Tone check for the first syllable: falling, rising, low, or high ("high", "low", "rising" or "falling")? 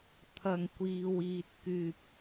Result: low